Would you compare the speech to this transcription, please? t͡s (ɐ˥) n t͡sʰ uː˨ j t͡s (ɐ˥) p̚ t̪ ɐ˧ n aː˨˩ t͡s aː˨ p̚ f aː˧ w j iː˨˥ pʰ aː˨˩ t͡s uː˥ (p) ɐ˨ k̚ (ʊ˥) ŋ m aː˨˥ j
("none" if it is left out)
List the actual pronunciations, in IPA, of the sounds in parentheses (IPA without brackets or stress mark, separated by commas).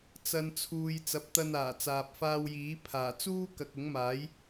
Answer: ɐ˨, ɐ˨˥, k, ʊ˨˥